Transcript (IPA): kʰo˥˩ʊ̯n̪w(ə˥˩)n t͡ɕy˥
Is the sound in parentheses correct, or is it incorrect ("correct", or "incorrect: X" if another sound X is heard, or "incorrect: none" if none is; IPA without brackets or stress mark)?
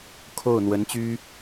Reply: incorrect: ə˧˥